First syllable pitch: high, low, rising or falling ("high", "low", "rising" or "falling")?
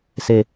falling